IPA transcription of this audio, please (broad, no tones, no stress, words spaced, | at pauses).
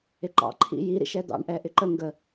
ɪǃɑ̰ ǃʰḭji ɾḭʃɛd̪ɑ̰ɳ ʔɛʔɪǃə ŋɡə